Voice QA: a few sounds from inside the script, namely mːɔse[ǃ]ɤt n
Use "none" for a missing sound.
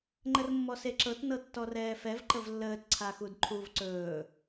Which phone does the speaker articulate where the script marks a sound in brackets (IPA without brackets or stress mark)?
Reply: ǁ